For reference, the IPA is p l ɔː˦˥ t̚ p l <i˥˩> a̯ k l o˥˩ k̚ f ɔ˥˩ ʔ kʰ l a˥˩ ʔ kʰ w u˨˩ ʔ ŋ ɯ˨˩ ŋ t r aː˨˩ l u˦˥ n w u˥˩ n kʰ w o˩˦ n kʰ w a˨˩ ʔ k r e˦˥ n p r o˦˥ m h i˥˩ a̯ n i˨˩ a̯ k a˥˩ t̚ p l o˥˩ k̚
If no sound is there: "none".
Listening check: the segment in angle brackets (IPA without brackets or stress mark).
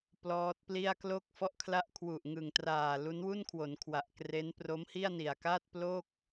i˥˩